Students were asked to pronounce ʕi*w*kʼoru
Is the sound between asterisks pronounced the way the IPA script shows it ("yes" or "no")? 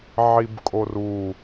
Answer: no